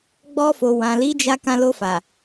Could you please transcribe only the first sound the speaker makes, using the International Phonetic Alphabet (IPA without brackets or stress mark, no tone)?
ɡ͡b